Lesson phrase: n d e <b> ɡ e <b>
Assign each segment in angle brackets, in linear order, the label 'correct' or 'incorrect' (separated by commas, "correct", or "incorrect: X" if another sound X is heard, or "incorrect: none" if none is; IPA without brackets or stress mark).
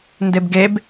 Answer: correct, correct